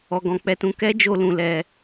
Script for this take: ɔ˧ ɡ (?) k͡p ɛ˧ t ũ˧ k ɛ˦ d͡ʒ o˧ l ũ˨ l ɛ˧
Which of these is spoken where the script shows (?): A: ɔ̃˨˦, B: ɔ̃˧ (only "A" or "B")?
B